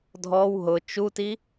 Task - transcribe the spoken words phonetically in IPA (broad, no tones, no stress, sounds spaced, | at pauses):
dʱ ɔ w ɦ ʊ t͡ʃ u t i